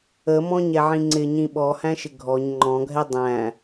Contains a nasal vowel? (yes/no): yes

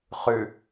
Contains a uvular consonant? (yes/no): yes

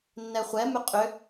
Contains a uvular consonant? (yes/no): yes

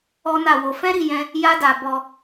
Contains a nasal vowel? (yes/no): yes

